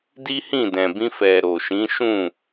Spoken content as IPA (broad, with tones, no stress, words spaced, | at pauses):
di˦hĩ˦˨dɛ̃˨ bĩ˧fɛ˨ ɾo˨ʃĩ˨˦ʃũ˦˨